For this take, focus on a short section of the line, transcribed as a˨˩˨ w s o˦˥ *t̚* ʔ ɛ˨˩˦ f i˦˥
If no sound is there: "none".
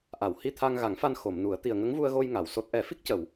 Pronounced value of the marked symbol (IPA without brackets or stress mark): t̚